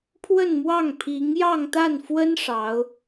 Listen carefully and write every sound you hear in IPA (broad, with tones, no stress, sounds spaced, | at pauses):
pʰ w ə˥˧ n m w ɑ˥˩ ŋ pʰ i˧˥ ŋ j ɑ˥˧ ŋ t̪ a˥˩ n f w ə˥ n ʂ ɑ˧˥ ʊ̯